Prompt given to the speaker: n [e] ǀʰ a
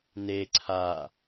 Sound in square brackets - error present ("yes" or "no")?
no